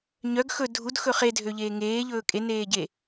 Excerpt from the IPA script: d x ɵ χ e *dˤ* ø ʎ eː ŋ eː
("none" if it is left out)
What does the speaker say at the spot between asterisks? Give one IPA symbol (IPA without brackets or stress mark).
dʱ